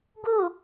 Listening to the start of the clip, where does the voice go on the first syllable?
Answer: falling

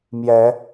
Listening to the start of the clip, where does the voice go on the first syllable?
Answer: rising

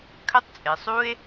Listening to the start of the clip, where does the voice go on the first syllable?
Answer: high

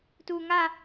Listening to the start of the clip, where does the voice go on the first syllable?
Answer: low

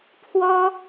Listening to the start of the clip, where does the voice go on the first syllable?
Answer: high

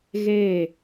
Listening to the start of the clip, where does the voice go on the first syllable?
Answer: falling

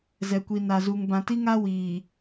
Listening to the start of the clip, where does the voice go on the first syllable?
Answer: low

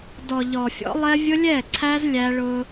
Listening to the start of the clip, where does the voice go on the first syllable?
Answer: low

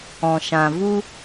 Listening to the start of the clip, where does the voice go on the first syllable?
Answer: low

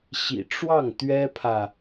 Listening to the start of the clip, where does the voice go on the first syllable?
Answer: low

